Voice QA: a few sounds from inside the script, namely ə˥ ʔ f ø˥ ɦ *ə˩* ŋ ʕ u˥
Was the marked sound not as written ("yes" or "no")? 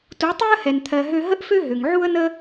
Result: yes